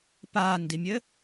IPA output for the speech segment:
p aː n d i mʲ ɘ

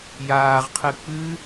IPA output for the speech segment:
j aː ʁ qʰ ɨ k͡p ɨ

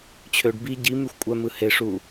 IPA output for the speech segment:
t͡ɕʰ ø ɖ b i ɟ i m y xʷ kʷʼ æ m ɯ h e ʂ u

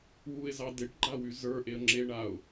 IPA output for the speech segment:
w u ɪ̯ z ɑ d e ʈ ɡ͡ǃ a w y z ə˞ ʔ e ə̯ ŋ͡ǁ e ɳ a ʊ̯

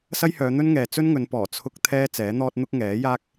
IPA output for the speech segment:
s ɐ˥ j h œː˨˧ n̪ ɵ˥ n ŋ ɛː˨ t͡s ɵ˥ n ŋ ɵ˨˧ n p ɔː˨˩ t͡sʰ ʊ˥ k̚ t̪ʰ ɛː˥ t͡s ɛː˨˥ n̪ ɔː˥ t̚ n̪ ʊ˥ k̚ ŋ ɛː˨˥ j aː˥ k̚

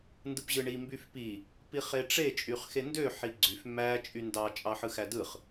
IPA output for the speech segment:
n d ɯ p ʑ ɯ ɳ i m b y f p i | p i χ e ʈ͡ʂ e t͡ʃʼ y χ x e n d ø ħ i ɡ͡ǀ y f m æ t͡ʃʼ y n d ɑ t͡ʃʼ ɑ ħ ɯ x æ d ɯ χ

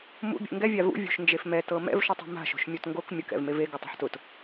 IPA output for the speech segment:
m ṵ bʲ ṵ ŋ ɡ ɛ vʲ a v ṵ vʲ ṳ ʃ n d͡ʒ e f m ɛ t ɤ m ɛ̰ v ʃ u tˤ ṳ m a̤ ʃ o̤ ʃ mʲ o t ŋ ɡ o k mʲ ʊ k ɛ̰ v m e v e ɡ o tˤ a̤ ħ t ʊ t

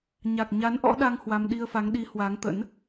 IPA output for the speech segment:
ɲ a˨˩ k̚ ɲ a˨˦ n ʔ ɔ̰˧˥ ɗ a˧ ŋ h w a˧ m ɗ i˧ ə̯ f a˨˦ ŋ ɗ i˨˦ h w a˨˦ ŋ t̪ ə̰˧˥ n

